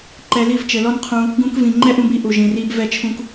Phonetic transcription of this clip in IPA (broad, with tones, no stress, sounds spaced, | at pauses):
ǃ ɛ˨ l i˦˨ v t͡ʃ ɘ˨ l ɔ˦ n qʰ ũ˧ | ɡ ũ˧ k v ĩ˨ ŋ͡ǃ ɛ˦ ʔ ũ˧ b i˦ ʔ u˨ ʒ ĩ˨ r i˧ b v ɛ˦˨ t͡ʃʰ ũ˦ k